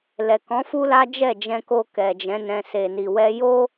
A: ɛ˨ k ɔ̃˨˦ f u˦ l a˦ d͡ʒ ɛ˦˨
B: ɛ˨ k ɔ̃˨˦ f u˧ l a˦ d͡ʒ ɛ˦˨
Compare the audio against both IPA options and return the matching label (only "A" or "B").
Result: A